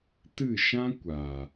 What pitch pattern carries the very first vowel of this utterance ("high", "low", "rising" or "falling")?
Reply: falling